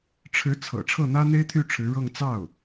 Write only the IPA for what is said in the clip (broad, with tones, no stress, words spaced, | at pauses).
ʈ͡ʂʰɻ̩˧˥t͡sʰɤ̰˨˩ ʈ͡ʂʰɤ˥˩n̪ä˥n̪e˥ɪ̯t̪ʰy˥˩ ʈ͡ʂʰɻ̩˧˥ɻɤ˥˧ŋ t͡sɑ˥˩ʊ̯